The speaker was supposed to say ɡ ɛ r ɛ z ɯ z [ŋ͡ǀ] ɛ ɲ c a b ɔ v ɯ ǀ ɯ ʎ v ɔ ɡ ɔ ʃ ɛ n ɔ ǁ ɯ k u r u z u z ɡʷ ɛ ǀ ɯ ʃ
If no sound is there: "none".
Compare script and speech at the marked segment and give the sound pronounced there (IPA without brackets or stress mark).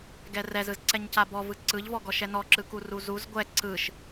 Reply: ǀ